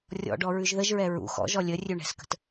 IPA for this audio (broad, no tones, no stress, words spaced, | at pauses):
rʲɔ̰ɖɔ ɹʉʒðəʒɹɛ ɹṵ xɔ̰ʒɔ lʲərʲʉ ɳɛ̤skə̤t